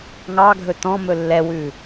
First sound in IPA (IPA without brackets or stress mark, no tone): ŋ